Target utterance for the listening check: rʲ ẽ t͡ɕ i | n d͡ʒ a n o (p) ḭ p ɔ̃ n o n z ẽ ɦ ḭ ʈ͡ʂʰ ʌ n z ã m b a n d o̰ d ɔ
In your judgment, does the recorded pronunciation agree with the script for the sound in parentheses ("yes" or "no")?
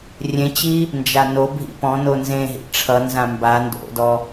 no